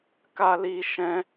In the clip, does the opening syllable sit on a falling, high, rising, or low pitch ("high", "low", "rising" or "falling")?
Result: high